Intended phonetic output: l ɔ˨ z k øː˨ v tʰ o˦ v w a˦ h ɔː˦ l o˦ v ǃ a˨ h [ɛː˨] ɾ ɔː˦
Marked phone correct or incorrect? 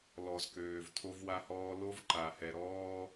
incorrect